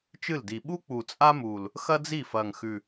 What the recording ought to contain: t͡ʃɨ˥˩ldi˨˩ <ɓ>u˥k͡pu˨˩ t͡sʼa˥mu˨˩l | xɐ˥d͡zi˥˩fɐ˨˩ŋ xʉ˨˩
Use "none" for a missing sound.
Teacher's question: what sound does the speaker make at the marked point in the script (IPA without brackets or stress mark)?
ɓ